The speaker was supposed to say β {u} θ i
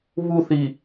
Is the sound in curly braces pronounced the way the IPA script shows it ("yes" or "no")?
yes